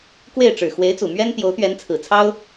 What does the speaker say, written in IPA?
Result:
k w e˥˩ ɪ̯ ʈ͡ʂ ɻ̩˨˩ x w e˧˥ ɪ̯ t͡s u˨˩ m ɥ ɛ˥ n t̪ j o˧˥ ʊ̯ t̪ ɥ ɛ˧˥ n t͡sʰ ɹ̩˨˩ t͡sʰ ɑ˥ ʊ̯

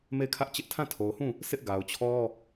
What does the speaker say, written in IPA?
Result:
m e˦˨ ɪ̯ kʰ ä˦ ʔ t͡ɕ ɪ˦ ʔ tʰ ã˦˨ tʰ o˨ ʊ̯ h ũ˦˨ | s ɪ˦ ʔ ɡ a˨ ʊ̯ t͡ɕʰ ɔ˦

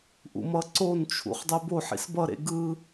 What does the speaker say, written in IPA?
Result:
ʔ ṵ m ʌ ǀ o n t͡ʃʰ ṵ χ dˤ e b o ħ ḭ s b ʌ ɾ ḛ ɡ ɯ

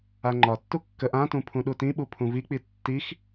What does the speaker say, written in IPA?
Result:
a ŋ͡ǃ ɒ tː u kː ə ʔ ã t ũ pʰ ũ ɗ u t ĩ ɓ u pʰ ũ v i k͡p i tː i x

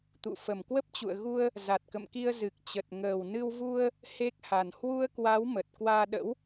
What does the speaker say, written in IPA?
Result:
t̪ ṵ˧˨ f ə˨˩ m k w ə˦˥ p̚ t͡ɕ ṵ˧˨ ə̯ ɣ u˧ ə̯ | z a˨˩ t̚ k ə̰˧˨ m k i˧ ə̯ z ɨ˨˩ k̚ t͡ɕ ə˨˩ t̚ ŋ əː˨˩ w n ɨ˧ w v u˧ ə̯ | h e˦˥ k̚ h a˨˩ n h w u˧ ə̯ k w a˨˦ w m ə˨˩ t̚ k w aː˧ ɗ ə̰˧˥ w

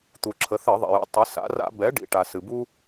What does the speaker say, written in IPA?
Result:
t̪ u˩ ǁʰ ə˩˧ θ ɘ˧˩˧ ðˤ ḭ˩ j ṵ˩˥ tˤ ɨ˩˧ s a̰˩˧ r a̰˧˩˧ b ɛ˩˥ ɖ ḭ˩ ʈ a˩ s ɨ˩ b u˦

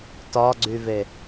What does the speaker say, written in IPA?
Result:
t ɒ ɡ͡ǀ y v e

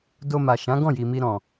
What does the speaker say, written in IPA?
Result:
d o˧ m a˨ ʃ ã˨˦ ɡ ɔ̃˦˨ j i˨ m i˧ ɾ ɔ̃˨

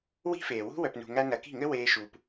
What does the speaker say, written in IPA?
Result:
w i̤˦ f eː˨ w ṳ˦ w œ˨ p n ṳ˨ ŋ æ˧ n ɐ˨ k i̤˦˨ ŋ ɘ˦ w eː˧ ʃ uː˨ p

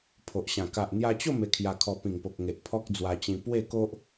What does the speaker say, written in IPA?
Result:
pʰ o˨ ʔ ɕ ã˨˩ k a˨ ʔ n̪ j a˧ t͡ɕ o˥˧ m e˧ kʰ j a˧ kʰ ɔ˧ p ĩ˨˩ ŋ p o˨ k̚ ŋ e˨ ʔ pʰ ɔ˦ k̚ d͡z w a˧ t͡ɕ ĩ˧ p w e˥˧ k o˦ ʔ

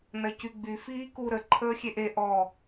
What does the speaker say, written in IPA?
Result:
n ɐ c y ɡ͡b y f iː k u ɾ ə ǃʰ əː xʲ e ʔ e ʔ ɔ

